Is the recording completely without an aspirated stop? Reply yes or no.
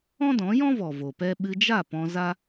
yes